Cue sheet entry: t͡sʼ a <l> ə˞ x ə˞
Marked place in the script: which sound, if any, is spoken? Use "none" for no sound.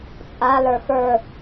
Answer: l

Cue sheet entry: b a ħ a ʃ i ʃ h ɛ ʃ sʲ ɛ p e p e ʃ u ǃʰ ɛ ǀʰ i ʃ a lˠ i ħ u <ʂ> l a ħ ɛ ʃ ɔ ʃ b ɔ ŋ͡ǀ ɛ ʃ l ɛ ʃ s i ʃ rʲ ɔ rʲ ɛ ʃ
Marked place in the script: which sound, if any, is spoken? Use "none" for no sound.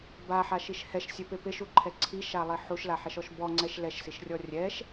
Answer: ʃ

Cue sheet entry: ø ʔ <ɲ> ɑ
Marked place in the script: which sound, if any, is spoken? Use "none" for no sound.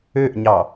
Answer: ɲ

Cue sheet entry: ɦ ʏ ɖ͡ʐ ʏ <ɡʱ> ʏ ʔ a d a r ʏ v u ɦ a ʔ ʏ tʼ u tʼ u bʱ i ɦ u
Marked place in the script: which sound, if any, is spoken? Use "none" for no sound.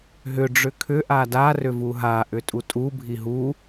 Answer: kʰ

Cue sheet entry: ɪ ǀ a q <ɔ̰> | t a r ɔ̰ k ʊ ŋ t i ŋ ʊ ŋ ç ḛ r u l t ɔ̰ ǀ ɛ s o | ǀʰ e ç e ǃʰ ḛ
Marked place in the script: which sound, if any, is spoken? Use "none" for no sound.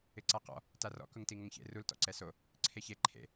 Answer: ɔ̰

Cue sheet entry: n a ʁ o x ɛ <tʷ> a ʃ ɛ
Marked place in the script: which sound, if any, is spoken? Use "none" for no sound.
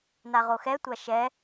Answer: tʷ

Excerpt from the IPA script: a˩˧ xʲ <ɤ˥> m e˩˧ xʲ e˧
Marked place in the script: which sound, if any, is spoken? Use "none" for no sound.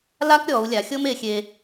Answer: ɤ˥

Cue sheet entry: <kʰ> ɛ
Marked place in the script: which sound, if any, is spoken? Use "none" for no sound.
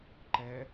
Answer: ǃ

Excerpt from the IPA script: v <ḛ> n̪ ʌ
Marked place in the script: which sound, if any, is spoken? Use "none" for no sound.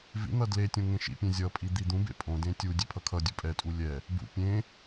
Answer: ḭ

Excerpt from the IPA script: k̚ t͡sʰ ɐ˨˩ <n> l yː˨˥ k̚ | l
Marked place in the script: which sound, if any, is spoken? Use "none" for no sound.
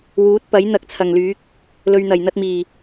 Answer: ŋ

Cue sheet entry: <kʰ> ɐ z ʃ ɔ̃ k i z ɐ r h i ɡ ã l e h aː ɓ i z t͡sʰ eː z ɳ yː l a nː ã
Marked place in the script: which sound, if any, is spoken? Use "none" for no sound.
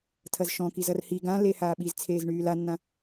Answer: tʰ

